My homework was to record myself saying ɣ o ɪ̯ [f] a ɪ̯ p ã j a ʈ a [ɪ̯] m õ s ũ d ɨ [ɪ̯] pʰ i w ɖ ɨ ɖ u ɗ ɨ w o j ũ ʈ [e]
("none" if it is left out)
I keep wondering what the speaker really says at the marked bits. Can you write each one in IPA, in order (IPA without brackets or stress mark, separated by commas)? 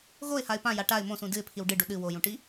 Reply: h, ɪ̯, ɪ̯, i